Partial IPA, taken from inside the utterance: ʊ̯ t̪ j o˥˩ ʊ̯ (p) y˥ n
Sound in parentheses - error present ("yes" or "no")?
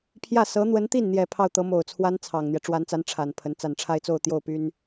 no